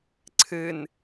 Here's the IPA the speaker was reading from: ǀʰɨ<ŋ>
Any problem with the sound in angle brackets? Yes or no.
yes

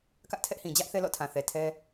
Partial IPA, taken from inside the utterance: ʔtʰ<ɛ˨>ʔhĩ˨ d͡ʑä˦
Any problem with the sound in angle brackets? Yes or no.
yes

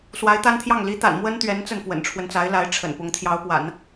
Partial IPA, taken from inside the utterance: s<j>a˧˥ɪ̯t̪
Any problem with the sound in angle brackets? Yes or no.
yes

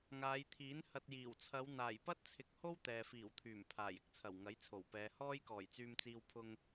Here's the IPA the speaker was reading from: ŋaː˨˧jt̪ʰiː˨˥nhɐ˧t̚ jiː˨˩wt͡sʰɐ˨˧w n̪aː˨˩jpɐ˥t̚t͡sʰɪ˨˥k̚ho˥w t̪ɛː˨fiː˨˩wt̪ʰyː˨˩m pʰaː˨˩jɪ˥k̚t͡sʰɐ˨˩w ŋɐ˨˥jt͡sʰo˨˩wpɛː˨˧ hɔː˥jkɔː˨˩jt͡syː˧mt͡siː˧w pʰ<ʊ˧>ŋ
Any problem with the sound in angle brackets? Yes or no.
no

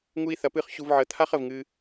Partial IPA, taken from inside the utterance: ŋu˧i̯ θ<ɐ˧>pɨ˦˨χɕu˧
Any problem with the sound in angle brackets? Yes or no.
no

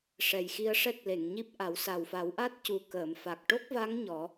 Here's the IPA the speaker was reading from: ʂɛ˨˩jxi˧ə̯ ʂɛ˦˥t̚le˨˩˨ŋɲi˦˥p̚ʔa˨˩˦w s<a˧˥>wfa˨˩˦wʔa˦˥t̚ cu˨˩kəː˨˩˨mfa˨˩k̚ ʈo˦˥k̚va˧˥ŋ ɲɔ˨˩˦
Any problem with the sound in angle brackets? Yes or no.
yes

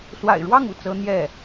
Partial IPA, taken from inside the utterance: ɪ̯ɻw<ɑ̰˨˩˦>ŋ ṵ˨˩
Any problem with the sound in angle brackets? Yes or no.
yes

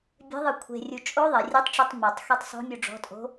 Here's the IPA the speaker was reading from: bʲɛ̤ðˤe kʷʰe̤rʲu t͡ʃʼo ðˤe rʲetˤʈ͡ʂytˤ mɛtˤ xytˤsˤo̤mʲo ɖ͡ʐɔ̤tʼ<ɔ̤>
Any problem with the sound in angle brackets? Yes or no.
yes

